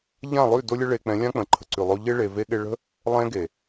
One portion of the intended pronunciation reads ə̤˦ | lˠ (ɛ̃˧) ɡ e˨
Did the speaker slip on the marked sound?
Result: no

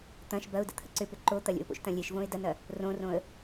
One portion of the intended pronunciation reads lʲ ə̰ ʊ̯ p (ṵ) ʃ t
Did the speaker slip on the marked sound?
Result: yes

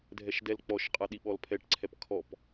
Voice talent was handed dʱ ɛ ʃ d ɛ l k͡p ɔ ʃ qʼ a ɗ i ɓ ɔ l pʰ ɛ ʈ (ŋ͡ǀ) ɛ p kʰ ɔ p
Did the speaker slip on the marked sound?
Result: yes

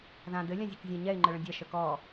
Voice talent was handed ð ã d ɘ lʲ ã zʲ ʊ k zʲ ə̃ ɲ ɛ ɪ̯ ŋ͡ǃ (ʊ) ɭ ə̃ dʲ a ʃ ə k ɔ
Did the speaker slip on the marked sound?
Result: yes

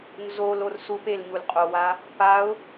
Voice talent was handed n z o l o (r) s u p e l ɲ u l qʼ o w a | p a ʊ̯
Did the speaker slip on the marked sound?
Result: no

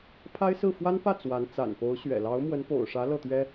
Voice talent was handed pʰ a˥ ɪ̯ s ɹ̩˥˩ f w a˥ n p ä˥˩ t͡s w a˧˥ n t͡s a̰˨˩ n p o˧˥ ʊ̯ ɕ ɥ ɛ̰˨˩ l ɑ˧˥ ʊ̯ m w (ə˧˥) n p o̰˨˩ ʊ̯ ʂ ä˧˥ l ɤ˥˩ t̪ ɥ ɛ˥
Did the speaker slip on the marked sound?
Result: no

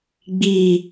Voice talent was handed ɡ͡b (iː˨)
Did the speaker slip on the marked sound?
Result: no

